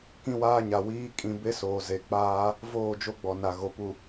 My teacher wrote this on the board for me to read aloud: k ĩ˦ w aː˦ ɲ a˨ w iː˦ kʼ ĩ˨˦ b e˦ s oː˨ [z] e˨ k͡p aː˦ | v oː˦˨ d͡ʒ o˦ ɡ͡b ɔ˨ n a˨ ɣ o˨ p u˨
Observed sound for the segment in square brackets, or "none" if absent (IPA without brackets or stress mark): z